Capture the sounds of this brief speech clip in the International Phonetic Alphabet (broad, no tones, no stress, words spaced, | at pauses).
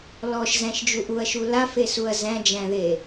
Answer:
lɔʃzæ̃ʃd͡ʒuʔ uɐ̯ʃu lafesuɐ̯ zæ̃d͡ʒæ̃ðe